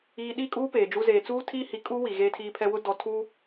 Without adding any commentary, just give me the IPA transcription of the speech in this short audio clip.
iː˨ ɗ i˦˨ kʼ uː˦ p eː˨ d͡ʒ u˦ z eː˨ t͡s uː˦ tʰ iː˦ h i˨ kʼ u˦ w i˨ ɣ eː˦ tʰ iː˦ pʰ ɛ˦ w ʊ˦ d ɔ˨ tʰ u˦

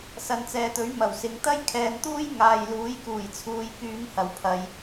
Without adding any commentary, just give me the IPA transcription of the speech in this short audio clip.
s ɐ˨˧ n t͡s ɛː˨ t̪ ɵ˨˥ ɥ m ɐ˨˩ w s ɪ˨ ŋ t̪ ɐ˥ j kʰ ɛː˨˧ n t̪ uː˥ j ŋ aː˨ j l uː˨˥ j k uː˨˩ j t͡sʰ uː˨˧ j k yː˧ ŋ h ɐ˨˩ w pʰ ɐ˨˧ j

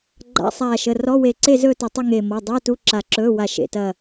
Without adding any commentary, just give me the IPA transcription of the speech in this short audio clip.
ɡ͡ǃ a̰˧˥˧ sˤ aː˧˩ ʃ ə˩˧˩ r ɔ˧˥˧ w e˧˩ ǀ e˥˧ z ɵː˥˧ t ɐ˧˩ tˤ ɵ˥˧ ŋ e˧˩ m ɔ˩˧˩ dˤ ɵː˧˥˧ t u˧˥˧ ǁ a˧˩ ǁ ɵː˧˥˧ w a˧˩ ʃ ḛ˩˧˩ t ɐ˧˩

